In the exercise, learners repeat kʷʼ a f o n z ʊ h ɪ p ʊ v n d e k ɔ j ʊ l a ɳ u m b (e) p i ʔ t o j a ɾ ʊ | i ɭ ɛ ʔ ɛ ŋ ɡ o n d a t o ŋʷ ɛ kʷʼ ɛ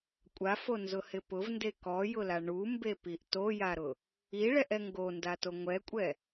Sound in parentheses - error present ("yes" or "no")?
no